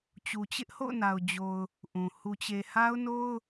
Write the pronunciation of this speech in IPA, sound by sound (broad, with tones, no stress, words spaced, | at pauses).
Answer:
t͡ɕu˨t͡ɕɪ˦ʔho̰˦˨ʊ̯na˨ʊ̯ d͡ʑo˨ʊ̯ | ʔũ˨ hu˨t͡ɕe˨ha˦ʊ̯no˦ʊ̯